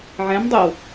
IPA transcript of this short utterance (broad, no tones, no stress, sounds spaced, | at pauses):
ʕ ɛ̃ m dˤ i w